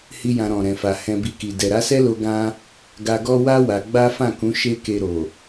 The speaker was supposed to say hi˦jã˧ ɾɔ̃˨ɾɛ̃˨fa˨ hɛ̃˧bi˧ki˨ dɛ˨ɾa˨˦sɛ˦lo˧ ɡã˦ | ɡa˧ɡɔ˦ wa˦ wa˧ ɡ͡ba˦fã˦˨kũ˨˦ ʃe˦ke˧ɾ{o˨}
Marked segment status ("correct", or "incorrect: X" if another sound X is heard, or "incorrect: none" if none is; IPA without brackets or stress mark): correct